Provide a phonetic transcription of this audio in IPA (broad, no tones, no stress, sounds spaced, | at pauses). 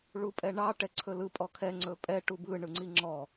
ɭ u pʼ ɛ ɳ ɑ ʈ ɛ ǀʰ ɵ l ɯ pʼ ɔ kʰ ɛ ŋ͡ǀ ɵ pʼ ɛ ʈ u b ɯ ɳ ɯ ŋ͡ǀ i ŋ͡ǁ ɔ